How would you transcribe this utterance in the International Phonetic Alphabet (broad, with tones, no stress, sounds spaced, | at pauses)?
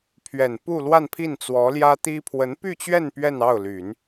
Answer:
pʰ ɥ ɛ˨˩ n p u˥˧ l w a˥˧ n pʰ i˥˩ n t͡s w ɔ˧˥ l j ä˥ t̪ i˥ pʰ w ə˧˥ n p y˥˧ t͡ɕ ɥ ɛ˥˧ n p ɥ ɛ˥˧ n ɑ˥˩ ʊ̯ l y˨˩˦ n